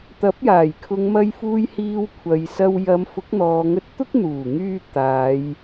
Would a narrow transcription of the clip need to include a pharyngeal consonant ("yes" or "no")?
no